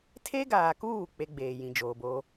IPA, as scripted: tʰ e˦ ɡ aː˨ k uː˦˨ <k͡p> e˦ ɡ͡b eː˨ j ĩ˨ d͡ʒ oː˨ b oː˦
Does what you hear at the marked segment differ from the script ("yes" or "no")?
no